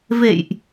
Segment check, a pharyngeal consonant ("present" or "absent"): absent